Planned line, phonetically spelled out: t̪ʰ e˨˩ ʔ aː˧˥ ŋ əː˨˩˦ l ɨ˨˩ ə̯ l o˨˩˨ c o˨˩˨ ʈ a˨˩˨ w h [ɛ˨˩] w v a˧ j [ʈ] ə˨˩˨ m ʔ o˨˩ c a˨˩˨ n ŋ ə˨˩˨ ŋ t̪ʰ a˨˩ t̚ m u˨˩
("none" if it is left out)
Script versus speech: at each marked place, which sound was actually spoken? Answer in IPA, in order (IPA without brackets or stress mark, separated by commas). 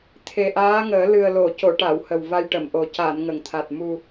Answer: ə˨˩, ʈ